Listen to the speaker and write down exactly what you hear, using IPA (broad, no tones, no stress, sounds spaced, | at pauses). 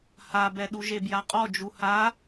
h a b ɛ ɗ u ʒ e b j a qʼ ɔ d͡ʒ u h a